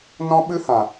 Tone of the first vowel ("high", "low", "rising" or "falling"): high